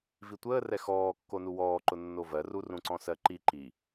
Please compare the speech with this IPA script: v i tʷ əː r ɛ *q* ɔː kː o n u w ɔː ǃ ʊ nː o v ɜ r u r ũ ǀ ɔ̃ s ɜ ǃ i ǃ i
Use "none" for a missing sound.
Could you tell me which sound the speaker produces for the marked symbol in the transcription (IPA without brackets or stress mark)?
x